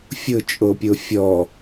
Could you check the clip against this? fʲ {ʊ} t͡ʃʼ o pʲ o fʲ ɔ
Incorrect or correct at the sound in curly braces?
correct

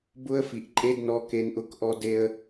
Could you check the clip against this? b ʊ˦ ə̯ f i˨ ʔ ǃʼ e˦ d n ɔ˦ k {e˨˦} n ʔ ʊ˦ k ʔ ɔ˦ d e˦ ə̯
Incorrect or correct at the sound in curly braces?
incorrect: e˦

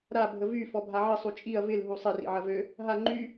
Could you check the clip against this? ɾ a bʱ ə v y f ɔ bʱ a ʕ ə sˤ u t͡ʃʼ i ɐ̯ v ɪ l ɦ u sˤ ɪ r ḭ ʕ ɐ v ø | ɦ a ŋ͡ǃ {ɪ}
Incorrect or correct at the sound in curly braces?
incorrect: y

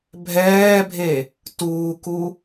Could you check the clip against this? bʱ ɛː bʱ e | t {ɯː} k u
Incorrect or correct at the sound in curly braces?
incorrect: uː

